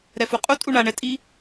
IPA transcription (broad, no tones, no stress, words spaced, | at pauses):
ɾɛfuqʼu tʼuɳa ɳɛtʼi